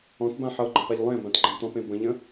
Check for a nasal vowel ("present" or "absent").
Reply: present